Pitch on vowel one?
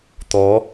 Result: rising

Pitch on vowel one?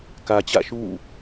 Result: low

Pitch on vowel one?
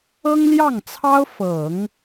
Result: high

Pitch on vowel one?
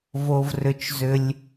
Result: low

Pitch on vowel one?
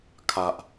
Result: high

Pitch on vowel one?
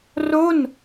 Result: falling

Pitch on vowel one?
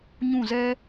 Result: falling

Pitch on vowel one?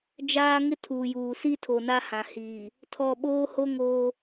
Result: high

